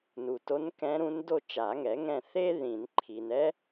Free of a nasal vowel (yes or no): no